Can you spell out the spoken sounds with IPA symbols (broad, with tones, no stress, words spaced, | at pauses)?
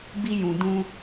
bi˦jũ˨dũ˦